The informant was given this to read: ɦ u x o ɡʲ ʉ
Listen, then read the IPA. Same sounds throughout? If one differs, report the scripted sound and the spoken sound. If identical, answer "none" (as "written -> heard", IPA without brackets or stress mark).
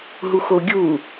ʉ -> u